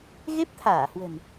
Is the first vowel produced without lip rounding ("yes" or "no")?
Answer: yes